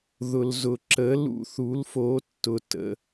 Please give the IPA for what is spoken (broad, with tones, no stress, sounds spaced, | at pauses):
ð ʊ˨ l z ʊ˨ ǁ ə˨˦ l ṵ˨ θ u˨˦ l f o˨˦ tː ʊ˨ t ə̰˨